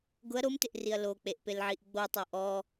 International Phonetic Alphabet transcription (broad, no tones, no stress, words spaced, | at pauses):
ɡʊɐ̯ ɾomtɪʔriɐ̯ lok͡peʔpelʕiʔ ɡ͡botˤo ʔɔ